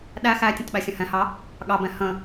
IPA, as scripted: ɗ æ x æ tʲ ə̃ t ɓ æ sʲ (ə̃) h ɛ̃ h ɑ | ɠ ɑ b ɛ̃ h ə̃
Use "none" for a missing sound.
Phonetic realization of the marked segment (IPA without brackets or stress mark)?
ə̃